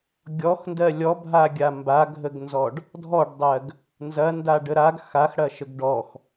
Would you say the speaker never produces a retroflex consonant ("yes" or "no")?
no